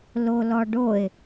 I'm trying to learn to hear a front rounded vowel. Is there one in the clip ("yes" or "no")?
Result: no